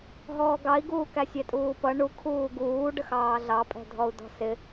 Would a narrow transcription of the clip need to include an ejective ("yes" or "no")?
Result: yes